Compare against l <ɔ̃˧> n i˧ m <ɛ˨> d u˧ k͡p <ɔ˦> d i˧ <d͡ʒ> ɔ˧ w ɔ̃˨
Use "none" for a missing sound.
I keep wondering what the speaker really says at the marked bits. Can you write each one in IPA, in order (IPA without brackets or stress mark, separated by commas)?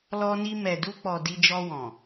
ɔ˧, ɛ˨, ɔ˨, d͡ʒ